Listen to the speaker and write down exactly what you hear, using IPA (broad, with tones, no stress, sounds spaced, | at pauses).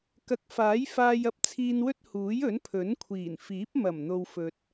k ɐ˨˥ k̚ f aː˨˥ j f aː˧ j ɐ˥ p̚ t͡sʰ iː˧ n w ɵ˥ t̚ h uː˨˥ j ɵ˨˥ n pʰ ɵ˨˥ n kʷʰ iː˨˩ n f iː˨˥ p̚ m ɐ˨˩ m n̪ o˨ w f ɵ˨ t̚